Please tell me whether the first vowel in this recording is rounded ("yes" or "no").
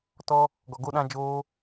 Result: yes